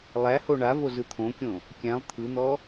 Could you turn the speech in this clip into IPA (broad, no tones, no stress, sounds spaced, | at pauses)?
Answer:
lˠ æ h o ɳ a v o z ɯ t̪ʰ õ kʲ õ | kʲ æ̃ lˠ t̪ʰ ɯ n̪ ɔ